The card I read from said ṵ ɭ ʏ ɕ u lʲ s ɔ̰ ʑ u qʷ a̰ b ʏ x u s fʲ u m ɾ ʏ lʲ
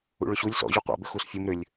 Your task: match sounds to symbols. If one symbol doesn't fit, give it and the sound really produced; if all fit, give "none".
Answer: none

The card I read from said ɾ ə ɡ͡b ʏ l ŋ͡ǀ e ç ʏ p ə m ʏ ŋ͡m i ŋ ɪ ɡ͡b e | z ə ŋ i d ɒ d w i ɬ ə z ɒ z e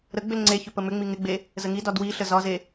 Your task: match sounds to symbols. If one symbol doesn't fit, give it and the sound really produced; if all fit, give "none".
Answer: none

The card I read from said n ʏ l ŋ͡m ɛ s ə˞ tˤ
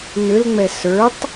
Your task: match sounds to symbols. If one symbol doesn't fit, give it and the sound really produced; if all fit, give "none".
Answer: none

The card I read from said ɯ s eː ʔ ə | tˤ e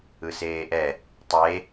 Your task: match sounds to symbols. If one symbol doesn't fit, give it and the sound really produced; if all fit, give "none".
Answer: ə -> ɛ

